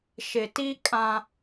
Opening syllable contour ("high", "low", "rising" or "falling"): low